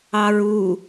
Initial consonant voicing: voiced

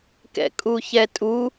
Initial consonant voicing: voiceless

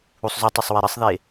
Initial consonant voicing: voiceless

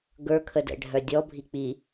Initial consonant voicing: voiced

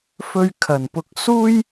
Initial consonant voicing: voiceless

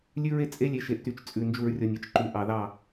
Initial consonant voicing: voiced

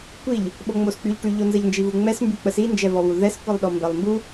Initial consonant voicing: voiceless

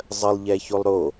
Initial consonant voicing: voiced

